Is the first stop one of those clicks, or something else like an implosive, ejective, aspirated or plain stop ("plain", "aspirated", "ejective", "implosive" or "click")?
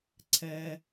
click